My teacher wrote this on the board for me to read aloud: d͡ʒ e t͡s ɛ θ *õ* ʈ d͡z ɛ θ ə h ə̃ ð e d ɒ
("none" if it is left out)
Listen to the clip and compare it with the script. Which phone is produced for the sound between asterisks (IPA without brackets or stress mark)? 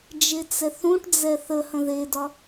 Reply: ũ